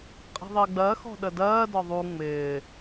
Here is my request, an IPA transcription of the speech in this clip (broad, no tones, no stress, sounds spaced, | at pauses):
qʼ i̤ ðˤ ɪː ɡ͡b ɜ x ɔ̤ ɗ ə d ɜː d ɒ ðˤ u ŋ͡m ɪː